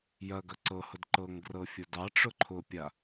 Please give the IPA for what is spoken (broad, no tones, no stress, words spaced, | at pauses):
jɐɡɐ ǀɤhʊd ǃɤŋ ɡrɤfʲʊdɑʈ͡ʂʊ ǃʰʊpʲa